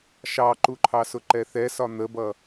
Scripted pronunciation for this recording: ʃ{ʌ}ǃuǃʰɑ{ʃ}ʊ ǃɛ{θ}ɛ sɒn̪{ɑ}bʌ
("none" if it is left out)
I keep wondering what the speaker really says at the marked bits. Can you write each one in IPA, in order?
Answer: ɑ, s, θ, ə

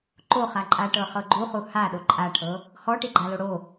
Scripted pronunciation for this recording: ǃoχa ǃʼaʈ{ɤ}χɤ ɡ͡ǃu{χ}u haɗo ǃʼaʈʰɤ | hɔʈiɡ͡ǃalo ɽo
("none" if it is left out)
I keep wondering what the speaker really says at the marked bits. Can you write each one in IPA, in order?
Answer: ɤ, χ

